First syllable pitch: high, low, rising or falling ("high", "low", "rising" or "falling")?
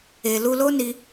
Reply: low